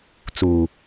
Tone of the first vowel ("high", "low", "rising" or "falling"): low